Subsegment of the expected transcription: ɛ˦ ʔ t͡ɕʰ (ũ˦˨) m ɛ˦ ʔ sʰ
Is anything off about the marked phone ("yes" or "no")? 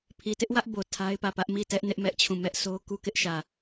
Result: no